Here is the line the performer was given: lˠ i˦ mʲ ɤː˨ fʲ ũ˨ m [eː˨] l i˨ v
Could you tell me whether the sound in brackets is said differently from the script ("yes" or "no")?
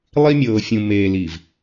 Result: no